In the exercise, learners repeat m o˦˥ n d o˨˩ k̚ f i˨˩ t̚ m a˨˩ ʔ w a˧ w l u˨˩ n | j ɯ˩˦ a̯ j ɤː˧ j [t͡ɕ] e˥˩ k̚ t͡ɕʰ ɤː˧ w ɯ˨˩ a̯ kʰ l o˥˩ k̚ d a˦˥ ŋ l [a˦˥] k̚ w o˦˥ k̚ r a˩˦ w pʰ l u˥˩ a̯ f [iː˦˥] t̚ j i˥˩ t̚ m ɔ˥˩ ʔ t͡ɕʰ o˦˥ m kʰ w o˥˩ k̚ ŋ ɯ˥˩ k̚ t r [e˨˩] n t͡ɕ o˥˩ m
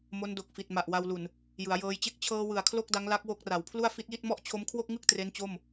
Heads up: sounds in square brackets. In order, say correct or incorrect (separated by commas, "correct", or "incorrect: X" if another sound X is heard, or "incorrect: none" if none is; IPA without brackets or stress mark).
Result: correct, correct, incorrect: i˦˥, incorrect: e˦˥